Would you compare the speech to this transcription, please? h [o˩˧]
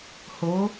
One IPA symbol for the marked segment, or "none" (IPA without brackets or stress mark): o˩˧